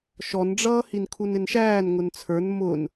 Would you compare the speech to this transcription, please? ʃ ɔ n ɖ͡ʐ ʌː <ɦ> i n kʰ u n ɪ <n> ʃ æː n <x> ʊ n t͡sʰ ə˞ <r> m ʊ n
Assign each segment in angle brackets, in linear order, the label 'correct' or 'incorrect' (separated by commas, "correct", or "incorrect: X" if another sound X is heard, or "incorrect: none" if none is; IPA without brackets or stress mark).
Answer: incorrect: h, correct, incorrect: ŋ, incorrect: n